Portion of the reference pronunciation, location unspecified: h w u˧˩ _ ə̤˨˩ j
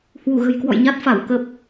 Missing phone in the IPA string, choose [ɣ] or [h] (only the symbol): ɣ